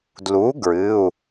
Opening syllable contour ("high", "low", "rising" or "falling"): rising